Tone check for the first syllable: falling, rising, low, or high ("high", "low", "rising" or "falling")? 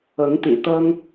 rising